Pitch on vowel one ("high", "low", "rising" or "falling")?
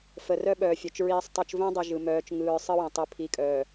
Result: low